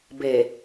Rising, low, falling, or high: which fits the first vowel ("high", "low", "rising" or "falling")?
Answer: low